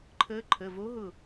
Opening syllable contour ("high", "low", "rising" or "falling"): rising